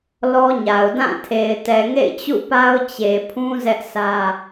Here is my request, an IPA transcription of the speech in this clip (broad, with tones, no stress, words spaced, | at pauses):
lɔ˦ɲa˨ʊ̯ dã˦˨tʰe˨ɪ̯ tɛ˨ŋḛ˦˨ɪ̯ t͡ɕṵ˦˨pa˦ʊ̯ t͡ɕe˨pʰũ˦ zɛ˦ʔsä˦